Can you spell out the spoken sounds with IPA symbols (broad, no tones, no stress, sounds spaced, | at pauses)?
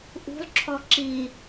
ʔ ṳ lˠ ǁʰ ɔ ǁ i